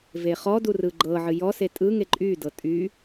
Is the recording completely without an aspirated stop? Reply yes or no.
yes